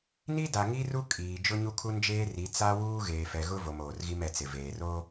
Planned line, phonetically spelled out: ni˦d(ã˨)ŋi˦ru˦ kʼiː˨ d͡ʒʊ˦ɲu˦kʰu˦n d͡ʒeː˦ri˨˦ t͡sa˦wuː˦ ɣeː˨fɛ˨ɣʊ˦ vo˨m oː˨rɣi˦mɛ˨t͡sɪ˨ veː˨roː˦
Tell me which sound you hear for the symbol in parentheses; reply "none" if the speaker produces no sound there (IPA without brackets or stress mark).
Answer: a˨